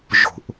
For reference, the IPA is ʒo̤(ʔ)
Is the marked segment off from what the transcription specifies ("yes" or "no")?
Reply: no